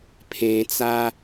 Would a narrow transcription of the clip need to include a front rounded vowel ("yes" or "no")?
no